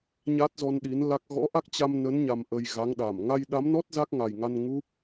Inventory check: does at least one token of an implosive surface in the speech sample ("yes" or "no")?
yes